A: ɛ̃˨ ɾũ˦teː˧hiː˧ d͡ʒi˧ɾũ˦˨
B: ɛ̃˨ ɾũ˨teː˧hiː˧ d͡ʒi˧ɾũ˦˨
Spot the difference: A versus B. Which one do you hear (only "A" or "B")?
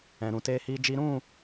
B